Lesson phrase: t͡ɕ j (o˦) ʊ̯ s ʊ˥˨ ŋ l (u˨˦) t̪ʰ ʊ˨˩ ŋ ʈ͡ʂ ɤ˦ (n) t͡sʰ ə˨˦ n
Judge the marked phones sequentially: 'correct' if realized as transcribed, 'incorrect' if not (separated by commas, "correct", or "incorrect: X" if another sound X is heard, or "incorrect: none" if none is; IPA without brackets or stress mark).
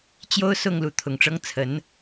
correct, correct, incorrect: ŋ